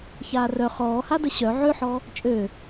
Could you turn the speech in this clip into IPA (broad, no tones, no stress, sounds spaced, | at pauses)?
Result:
ç aː r œ χ ɔː h a d ə ɕ œ ʕ ø ħ ɔ | t͡ʃʼ ø